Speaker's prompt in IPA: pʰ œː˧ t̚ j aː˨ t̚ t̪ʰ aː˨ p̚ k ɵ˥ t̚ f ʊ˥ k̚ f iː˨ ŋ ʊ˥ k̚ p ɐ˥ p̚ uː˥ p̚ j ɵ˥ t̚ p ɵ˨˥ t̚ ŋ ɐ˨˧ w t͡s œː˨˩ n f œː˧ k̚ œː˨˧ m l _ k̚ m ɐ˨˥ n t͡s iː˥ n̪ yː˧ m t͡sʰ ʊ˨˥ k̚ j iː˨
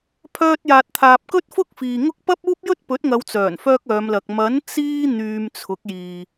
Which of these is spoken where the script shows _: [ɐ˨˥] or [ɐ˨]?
ɐ˨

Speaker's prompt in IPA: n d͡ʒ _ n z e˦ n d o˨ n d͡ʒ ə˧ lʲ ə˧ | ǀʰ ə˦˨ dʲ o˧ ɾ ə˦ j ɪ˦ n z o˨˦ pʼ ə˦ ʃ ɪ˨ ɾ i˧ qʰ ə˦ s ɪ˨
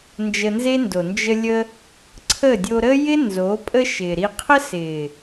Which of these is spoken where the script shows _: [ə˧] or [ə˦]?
ə˧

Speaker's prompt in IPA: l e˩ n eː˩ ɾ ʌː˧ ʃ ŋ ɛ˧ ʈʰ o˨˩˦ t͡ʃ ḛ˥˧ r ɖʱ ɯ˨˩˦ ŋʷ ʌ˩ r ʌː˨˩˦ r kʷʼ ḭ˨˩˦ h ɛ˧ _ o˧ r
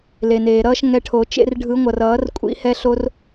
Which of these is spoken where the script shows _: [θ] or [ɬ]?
ɬ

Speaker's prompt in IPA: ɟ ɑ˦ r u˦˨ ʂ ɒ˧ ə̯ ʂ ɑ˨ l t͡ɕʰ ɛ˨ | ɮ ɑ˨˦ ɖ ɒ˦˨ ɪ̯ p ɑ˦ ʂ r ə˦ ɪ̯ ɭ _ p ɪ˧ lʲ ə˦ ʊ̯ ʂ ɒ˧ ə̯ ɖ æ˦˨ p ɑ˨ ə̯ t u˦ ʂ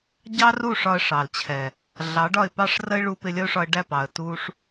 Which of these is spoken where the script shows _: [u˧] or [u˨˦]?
u˧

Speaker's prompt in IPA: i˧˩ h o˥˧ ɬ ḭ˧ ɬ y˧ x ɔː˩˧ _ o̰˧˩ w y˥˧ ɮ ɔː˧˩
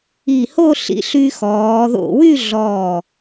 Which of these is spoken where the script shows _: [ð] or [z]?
ð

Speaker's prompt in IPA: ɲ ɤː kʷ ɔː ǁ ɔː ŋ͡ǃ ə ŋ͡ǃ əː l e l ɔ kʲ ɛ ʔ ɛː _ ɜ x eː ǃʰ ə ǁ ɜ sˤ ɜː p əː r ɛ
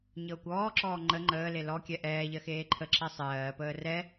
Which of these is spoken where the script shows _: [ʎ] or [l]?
ʎ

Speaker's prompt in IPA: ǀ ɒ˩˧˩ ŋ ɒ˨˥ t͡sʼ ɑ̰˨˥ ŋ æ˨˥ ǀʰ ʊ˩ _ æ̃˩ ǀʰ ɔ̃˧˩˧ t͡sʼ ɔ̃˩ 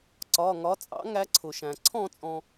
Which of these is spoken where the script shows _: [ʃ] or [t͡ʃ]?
ʃ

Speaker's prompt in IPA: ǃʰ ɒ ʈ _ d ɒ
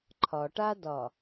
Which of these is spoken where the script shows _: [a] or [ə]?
a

